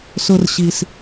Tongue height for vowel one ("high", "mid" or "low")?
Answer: high